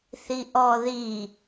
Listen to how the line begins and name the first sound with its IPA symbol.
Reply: θ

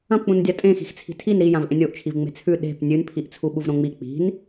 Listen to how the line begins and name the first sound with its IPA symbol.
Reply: ɐ̃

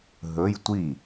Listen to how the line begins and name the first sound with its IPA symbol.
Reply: ɦ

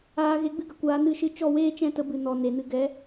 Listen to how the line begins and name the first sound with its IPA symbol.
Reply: aː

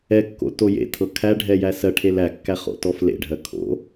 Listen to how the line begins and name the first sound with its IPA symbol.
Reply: ɛ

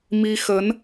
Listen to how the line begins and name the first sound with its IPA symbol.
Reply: m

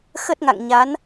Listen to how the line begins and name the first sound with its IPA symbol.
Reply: x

